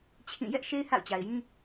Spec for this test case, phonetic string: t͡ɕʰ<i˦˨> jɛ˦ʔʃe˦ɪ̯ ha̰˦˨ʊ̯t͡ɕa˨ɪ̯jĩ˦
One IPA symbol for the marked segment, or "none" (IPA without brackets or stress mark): ĩ˦˨